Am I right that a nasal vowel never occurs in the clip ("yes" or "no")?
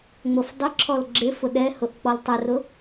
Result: yes